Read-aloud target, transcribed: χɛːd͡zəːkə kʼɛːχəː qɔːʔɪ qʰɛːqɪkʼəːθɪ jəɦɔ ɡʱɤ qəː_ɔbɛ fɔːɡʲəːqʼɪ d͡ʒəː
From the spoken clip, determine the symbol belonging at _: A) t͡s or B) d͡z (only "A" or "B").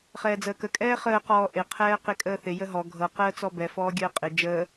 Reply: A